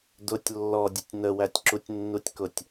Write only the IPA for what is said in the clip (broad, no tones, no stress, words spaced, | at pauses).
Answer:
dʊtʲ lːɔdʲʊtʲ nəwætʲ ǁutʲnːutʲkʊtʲ